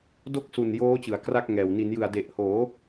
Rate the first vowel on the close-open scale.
mid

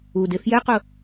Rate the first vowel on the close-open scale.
close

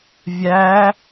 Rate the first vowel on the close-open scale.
open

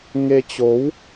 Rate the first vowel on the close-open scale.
mid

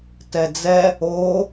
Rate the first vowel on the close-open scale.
mid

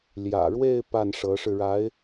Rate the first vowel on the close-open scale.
open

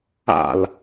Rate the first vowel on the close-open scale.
open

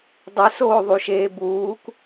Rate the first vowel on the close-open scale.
mid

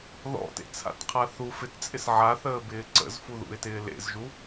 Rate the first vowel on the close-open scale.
mid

